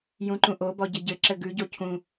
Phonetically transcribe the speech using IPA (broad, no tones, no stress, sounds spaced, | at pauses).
j ũ ǃ ũ ʔ o b ɔ ɟ ɘ ɟ ɘ ǁ ɘ ɡ ʉ ɟ o cʰ ũ